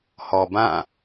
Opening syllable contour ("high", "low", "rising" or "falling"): low